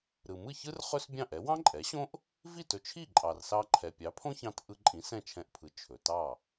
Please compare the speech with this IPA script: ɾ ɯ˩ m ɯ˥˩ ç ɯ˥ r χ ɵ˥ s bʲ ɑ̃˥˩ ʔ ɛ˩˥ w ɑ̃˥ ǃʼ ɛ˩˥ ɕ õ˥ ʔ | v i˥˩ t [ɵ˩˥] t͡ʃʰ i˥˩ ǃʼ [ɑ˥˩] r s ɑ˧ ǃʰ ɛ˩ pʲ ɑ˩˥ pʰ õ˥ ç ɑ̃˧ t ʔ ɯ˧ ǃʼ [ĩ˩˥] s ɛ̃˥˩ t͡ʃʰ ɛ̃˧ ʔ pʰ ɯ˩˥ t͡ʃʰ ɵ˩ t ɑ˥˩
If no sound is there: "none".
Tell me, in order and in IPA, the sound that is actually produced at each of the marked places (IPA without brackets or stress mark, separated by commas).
ɵ˩, ɑ˩, ĩ˩˥